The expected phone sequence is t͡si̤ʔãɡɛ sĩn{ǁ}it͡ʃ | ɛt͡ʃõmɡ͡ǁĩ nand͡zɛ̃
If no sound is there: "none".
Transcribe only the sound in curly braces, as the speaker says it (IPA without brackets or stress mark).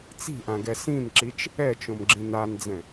ǁ